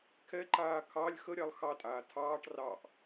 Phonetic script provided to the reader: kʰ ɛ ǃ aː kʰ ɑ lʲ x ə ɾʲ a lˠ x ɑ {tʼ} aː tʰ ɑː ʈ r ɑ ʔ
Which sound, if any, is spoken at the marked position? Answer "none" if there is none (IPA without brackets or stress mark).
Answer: tʼ